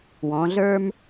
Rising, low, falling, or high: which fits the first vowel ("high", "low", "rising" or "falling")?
rising